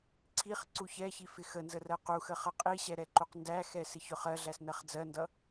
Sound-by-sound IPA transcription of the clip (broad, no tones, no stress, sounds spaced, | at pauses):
ǀʰ i χ ǀ u ç ɛ ç i f ɪ x ə n z ə r ɜ q u x ə χ ʌ qʼ i ɕ ɛ ɾ ɛ ǃ u q n d æ x ɛ s ɪ ç ʊ χ ɜ ɮ æ s n ɜ χ d͡z ɜ n d ʌ